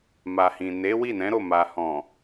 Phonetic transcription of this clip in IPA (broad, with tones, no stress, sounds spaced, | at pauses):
m a˨ h ĩ˨ n e˨˦ w i˦˨ n ɛ̃˨˦ ɾ o˦˨ m a˨ h ɔ̃˨